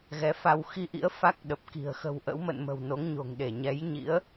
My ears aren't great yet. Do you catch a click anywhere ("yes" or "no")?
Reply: no